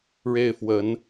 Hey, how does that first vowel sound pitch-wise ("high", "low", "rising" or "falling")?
falling